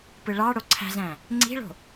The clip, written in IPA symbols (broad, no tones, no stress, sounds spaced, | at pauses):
p ɯ ɭ ɑ ɽ o ǀʰ æ̤ z æ̃ | ŋ͡ǀ i̤ ɭ o̤